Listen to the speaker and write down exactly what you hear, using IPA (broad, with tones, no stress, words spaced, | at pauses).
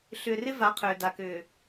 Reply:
ɬʏː˨rɪ˦va˨˦ qʰʏː˨da˨kʏː˨